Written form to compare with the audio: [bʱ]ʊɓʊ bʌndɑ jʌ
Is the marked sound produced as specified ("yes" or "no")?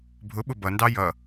yes